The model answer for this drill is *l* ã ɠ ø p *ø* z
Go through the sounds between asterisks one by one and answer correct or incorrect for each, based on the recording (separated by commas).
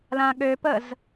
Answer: correct, incorrect